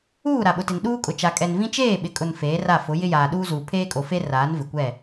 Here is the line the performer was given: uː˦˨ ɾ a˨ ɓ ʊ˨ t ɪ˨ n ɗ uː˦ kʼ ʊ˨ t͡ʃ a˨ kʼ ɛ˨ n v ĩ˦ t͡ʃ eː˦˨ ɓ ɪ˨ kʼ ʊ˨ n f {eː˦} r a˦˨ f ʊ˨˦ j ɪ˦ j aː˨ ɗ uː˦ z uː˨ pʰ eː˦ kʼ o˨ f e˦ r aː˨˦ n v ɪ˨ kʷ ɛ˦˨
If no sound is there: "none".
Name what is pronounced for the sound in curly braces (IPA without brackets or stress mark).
eː˨˦